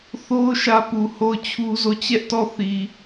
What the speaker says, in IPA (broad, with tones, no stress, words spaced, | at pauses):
θo˦ʊ̯ ʃä˦pu˨ ho˦˨ʊ̯t͡ɕʰu˦zo˦˨ t͡ɕɛ˦ʔtɔ˦˨θi˨